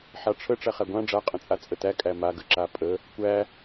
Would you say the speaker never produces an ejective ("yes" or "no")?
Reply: no